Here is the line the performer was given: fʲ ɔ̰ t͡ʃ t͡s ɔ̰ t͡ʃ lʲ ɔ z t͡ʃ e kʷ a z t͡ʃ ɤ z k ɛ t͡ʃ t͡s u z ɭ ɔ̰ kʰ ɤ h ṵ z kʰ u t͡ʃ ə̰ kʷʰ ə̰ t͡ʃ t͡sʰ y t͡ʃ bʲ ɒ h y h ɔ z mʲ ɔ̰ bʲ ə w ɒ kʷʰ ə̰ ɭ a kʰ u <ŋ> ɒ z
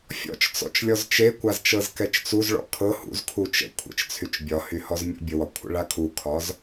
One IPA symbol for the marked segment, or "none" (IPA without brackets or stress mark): kʰ